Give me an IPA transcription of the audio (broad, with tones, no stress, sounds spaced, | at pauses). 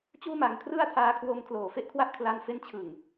t͡ɕ uː˥˩ m a˧ ŋ kʰ r ɯ˥˩ a̯ tʰ aː˧ kʰ w o˧ m kʰ l oː˨˩ f e˥˩ ʔ kʰ w a˦˥ ʔ kʰ l a˧ n f e˦˥ n t͡ɕʰ ɯ˨˩ ŋ